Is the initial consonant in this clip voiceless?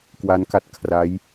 yes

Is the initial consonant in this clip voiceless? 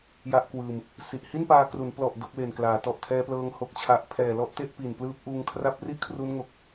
no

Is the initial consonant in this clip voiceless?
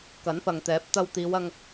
yes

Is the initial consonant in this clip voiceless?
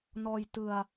no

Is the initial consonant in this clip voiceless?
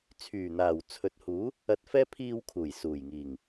yes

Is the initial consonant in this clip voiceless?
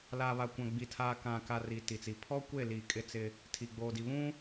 no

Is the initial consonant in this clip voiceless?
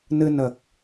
no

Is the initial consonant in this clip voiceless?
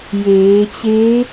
no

